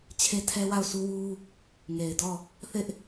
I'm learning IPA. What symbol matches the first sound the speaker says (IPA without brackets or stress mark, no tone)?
t͡ɕʰ